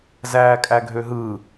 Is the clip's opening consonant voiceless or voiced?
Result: voiced